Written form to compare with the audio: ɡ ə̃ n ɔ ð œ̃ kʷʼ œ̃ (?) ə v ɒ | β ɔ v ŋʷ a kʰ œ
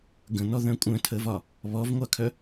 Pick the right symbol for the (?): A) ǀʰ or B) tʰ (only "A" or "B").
B